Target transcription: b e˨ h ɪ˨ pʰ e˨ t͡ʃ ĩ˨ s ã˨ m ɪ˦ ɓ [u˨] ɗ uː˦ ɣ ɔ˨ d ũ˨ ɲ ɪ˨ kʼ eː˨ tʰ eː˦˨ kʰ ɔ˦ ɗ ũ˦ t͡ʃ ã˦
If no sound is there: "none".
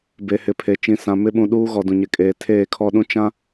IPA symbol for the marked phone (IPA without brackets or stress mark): ũ˨